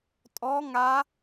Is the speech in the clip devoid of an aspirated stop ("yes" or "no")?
yes